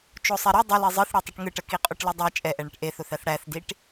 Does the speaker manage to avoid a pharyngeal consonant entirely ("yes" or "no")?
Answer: yes